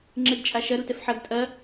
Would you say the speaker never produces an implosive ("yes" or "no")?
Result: yes